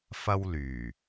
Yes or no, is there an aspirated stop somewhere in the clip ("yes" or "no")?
no